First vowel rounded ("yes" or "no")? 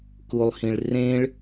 yes